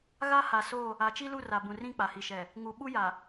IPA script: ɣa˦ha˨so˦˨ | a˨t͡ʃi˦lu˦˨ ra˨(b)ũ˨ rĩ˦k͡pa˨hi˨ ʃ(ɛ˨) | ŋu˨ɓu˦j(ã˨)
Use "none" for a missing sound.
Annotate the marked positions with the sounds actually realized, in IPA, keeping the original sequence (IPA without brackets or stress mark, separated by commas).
b, ɛ˨, a˨